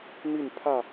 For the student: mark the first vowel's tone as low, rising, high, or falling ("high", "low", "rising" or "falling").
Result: falling